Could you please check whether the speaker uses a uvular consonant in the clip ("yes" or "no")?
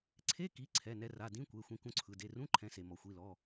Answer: no